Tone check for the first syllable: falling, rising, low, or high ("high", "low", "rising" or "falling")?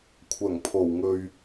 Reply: low